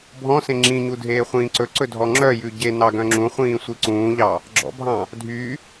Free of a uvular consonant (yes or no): no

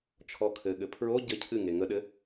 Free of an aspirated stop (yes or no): no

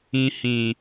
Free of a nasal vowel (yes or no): no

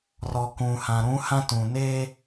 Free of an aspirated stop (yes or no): yes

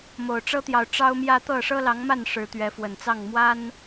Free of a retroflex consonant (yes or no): no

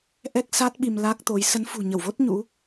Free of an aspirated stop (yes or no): yes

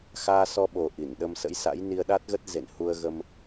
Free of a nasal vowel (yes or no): yes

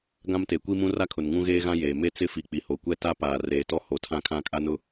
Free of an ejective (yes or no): no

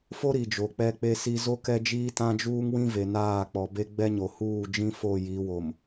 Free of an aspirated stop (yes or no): yes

